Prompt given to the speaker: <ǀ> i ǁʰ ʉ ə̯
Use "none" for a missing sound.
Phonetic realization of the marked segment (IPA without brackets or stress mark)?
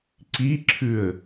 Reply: ǀ